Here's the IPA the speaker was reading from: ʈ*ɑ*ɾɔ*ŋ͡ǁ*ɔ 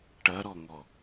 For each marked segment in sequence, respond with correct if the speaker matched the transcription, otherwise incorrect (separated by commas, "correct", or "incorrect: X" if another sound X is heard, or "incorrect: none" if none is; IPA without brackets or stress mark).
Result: incorrect: ɐ, incorrect: ŋ